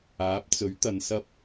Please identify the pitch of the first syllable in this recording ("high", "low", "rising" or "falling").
rising